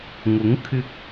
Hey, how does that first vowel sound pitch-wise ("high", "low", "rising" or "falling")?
rising